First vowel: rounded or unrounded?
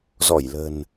rounded